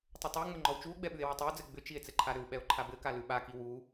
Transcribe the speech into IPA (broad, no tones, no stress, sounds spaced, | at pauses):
tˤ ʏ tˤ ʉ ŋ͡m ɘ ŋ͡ǃ ɔ w t͡ʃ u o̯ ɡ͡b ɛ ɓ ʉ e̯ w a tˤ ɛ o̯ d͡z ɘ ɡ͡b ʏ t͡ʃ i e̯ t͡s ɘ ǃʰ a ɾ ʏ w ɓ ɛ o̯ ǃʰ a b ɘ k a l ʉ ɓ a k i w u